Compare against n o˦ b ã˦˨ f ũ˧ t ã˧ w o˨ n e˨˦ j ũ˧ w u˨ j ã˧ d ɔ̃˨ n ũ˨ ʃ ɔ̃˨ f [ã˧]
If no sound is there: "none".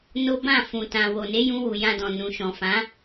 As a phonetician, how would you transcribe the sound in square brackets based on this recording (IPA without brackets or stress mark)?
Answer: ã˨˦